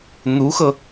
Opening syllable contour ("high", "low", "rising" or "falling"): rising